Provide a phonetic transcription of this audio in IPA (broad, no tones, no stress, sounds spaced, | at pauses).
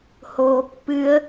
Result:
h oː pː ɨ ə̯